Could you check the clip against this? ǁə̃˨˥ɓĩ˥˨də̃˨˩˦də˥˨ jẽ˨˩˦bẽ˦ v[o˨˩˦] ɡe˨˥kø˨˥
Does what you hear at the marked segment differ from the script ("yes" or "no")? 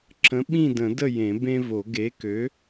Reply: no